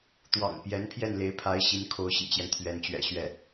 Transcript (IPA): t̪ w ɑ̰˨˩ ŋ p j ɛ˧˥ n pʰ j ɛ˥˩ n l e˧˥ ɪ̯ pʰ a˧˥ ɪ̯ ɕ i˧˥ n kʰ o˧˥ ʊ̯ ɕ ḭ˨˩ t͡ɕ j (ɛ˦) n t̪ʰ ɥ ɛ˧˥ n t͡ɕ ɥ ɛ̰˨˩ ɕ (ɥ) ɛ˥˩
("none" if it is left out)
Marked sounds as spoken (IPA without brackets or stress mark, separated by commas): ɛ˦, ɥ